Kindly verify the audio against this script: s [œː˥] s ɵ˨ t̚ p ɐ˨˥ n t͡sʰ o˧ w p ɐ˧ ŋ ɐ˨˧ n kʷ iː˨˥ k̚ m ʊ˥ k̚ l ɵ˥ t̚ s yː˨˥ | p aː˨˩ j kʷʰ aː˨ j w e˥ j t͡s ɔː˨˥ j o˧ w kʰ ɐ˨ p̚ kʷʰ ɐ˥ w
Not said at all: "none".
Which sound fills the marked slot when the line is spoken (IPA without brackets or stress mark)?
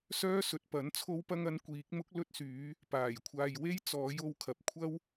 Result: œː˥